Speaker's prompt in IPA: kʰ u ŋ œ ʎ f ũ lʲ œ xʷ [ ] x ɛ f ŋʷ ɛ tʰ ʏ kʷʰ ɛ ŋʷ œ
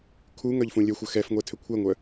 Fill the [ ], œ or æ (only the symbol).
œ